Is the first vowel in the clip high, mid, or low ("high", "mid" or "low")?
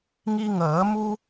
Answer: high